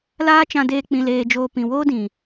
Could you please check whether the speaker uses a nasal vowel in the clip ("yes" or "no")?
yes